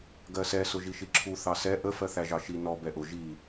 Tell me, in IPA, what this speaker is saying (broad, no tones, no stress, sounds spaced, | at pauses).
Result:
ɡ ɜ s ɛ s ʊ ʒ i ʃ i ǁʰ u θ ɑ s ɛ ʔ ə f ɜ θ æ ʒ ɑ ʃ i n ɔ b ɛ ʔ ʊ ʒ i